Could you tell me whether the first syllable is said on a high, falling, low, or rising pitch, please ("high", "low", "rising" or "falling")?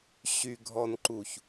low